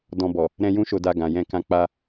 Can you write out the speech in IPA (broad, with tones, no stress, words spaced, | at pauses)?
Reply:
dɔ̃˧bɔ˨ | ɾɛ̃˧jũ˧ʃo˨da˨ ɡã˨jɛ̃˧kã˧ k͡pa˧